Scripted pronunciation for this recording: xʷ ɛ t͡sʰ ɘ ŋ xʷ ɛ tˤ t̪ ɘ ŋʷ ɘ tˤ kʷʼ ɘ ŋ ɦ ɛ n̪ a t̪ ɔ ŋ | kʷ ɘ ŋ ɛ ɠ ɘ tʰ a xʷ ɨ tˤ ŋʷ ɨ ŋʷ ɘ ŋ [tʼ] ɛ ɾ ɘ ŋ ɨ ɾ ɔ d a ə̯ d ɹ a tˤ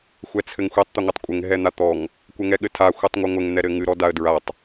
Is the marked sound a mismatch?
yes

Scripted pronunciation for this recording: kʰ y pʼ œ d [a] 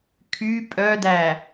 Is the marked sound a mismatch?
yes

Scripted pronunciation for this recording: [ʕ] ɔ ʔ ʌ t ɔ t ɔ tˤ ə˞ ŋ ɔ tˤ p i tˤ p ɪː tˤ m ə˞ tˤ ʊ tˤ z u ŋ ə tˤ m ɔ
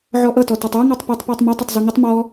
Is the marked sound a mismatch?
no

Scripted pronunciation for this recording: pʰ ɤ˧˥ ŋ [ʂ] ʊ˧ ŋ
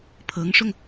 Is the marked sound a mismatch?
no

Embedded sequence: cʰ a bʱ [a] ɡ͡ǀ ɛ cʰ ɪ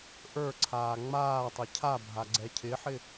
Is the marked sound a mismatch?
no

